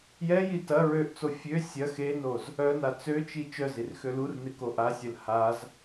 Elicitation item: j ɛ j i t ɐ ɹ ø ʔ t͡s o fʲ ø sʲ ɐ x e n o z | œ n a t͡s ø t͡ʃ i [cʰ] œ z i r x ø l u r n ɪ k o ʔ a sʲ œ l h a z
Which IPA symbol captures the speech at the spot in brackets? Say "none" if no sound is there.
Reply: t͡ʃ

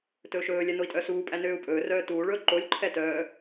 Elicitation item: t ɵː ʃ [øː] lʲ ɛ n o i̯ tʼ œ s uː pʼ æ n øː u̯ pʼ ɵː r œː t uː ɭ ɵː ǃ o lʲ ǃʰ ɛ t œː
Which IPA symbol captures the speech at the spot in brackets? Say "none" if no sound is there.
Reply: ɵː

